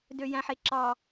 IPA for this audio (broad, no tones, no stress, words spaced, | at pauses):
døjæ̃ħeǁɑ